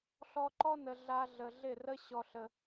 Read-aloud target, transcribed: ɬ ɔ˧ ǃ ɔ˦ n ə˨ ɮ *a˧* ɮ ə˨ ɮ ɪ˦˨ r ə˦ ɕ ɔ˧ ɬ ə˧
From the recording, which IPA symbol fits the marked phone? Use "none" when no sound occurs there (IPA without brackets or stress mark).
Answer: a˧